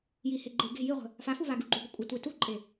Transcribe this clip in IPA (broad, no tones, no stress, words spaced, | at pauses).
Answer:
jiheɡ͡ǃe ɡe̤ jiʁʷə̤ | fafuva ɡuɡ͡ǃuɡʷə kʷʼətʷe tuǃʼe